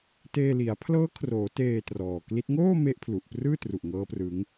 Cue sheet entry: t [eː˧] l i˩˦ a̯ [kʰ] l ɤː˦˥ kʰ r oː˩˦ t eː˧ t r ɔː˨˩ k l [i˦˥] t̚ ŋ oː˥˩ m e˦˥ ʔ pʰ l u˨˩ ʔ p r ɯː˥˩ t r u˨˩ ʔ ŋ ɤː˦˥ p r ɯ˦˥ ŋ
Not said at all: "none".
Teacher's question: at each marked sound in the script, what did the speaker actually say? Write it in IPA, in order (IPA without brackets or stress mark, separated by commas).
eː˧, pʰ, i˦˥